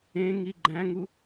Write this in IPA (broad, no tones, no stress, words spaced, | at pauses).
ẽŋi ɡ͡ǃæ̃ŋu